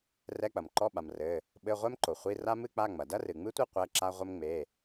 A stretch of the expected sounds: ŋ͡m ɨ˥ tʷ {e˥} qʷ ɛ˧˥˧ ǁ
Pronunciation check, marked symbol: correct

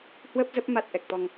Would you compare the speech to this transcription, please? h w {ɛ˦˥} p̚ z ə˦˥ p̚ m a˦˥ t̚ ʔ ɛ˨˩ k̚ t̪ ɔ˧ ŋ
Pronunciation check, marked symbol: incorrect: ə˦˥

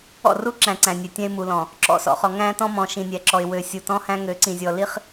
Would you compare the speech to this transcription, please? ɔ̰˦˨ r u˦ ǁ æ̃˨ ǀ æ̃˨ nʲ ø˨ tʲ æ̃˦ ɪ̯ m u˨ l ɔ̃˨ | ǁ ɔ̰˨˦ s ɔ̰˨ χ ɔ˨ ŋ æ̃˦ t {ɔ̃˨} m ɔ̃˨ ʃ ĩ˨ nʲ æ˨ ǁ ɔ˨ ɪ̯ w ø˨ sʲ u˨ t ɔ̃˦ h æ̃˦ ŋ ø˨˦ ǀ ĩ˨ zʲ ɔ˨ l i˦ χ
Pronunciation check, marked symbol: incorrect: ɔ̃˦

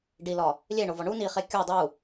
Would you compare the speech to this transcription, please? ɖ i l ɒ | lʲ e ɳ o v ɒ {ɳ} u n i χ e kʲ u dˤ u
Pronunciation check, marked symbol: correct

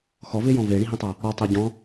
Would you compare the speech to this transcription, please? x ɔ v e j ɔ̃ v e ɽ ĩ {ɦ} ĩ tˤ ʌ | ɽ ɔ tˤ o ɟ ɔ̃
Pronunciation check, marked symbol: correct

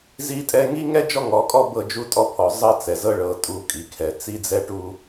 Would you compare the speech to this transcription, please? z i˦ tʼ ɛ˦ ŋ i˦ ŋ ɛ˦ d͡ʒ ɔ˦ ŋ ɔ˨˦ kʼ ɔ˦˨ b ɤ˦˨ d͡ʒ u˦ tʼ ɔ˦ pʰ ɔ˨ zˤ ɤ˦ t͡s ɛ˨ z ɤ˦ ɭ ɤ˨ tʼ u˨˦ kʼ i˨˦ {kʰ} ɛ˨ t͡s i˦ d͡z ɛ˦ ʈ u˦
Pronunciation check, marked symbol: correct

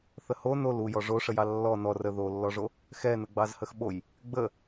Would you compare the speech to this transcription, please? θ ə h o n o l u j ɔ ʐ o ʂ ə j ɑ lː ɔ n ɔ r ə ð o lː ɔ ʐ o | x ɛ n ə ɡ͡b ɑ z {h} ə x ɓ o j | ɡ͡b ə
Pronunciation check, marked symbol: correct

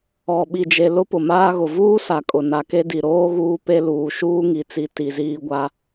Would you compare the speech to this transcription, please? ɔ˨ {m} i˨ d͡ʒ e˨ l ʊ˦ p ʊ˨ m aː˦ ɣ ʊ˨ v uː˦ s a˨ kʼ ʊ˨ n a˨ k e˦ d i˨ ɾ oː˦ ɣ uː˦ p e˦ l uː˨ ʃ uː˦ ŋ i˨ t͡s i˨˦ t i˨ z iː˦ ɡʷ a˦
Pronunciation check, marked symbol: incorrect: ɓ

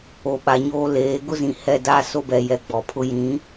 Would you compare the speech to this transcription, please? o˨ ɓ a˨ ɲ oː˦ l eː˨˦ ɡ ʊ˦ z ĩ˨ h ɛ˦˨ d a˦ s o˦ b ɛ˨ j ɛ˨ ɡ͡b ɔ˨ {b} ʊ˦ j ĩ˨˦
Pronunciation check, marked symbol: incorrect: pʰ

